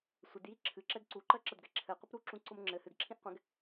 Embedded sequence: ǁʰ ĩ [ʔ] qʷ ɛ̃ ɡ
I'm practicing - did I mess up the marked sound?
no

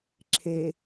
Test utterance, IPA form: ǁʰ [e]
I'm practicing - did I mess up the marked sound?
no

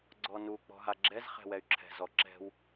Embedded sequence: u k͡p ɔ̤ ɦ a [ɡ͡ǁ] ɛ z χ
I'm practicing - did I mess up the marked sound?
no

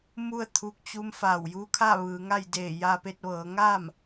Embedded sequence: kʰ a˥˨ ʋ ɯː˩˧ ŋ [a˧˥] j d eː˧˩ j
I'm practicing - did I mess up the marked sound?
yes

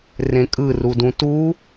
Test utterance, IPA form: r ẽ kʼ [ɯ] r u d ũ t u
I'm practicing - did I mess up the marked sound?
no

